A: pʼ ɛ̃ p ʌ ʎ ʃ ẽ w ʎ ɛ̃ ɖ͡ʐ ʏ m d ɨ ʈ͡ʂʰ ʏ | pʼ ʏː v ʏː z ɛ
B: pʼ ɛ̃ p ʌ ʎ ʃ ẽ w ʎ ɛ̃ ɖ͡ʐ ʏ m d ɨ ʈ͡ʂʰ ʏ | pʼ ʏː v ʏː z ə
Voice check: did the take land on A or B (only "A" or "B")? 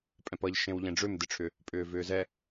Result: A